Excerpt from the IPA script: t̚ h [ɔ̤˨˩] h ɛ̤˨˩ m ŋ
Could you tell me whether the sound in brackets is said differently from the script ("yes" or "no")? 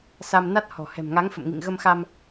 no